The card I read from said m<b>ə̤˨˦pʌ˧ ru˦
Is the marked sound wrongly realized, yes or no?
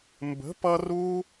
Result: no